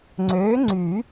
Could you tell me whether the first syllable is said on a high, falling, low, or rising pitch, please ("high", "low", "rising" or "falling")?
rising